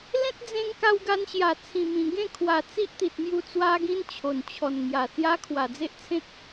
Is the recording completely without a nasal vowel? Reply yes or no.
no